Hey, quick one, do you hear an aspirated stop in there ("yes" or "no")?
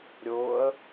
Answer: no